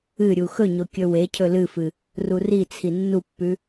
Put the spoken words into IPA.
ɨ ɾʲ u x ɵ ɲ o kʲ ɵ w e cʰ ɵ l ɨ f ɨ | r u r i t͡sʰ i nː u pː ʉ

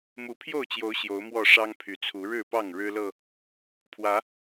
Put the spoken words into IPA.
m u˨˦ pʰ j o˥˨ ʊ̯ t͡ɕ j o˨˦ ʊ̯ ɕ j o˨˦ ʊ̯ m w ɔ˥˨ ʂ ɑ˦ ŋ pʰ y˨˩ t͡sʰ u˨˦ ɻ ɻ̩˥˨ p ɑ˥˨ ŋ ɻ ɻ̩˦ l ɤ˥˨ | pʰ w ä˨˦

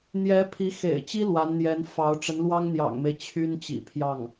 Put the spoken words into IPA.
n̪ j ɛ˧˥ pʰ i˧˥ x ḛ˨˩ ɪ̯ t͡ɕ i˥ l w a˧˥ n n̪ j ɛ˧˥ n f ɑ˧˥ ʊ̯ ʈ͡ʂ ə˧˥ n l w ɑ˥ ŋ n̪ j ɑ̰˨˩ ŋ m e˦ ɪ̯ t͡ɕʰ y˥ n t͡ɕ ḭ˨˩ pʰ j ɑ˥˩ ŋ

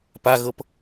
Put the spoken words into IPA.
p a ɣ ɤ p

